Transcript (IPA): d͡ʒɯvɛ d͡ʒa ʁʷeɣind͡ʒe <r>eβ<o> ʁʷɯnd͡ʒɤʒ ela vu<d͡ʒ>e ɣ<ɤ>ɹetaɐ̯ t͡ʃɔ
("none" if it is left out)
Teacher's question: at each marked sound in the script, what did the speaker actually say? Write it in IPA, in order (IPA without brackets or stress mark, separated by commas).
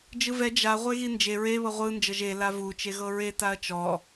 ɹ, ɤ, t͡ʃ, ɤ